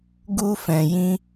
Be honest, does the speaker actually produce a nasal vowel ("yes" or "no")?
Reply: yes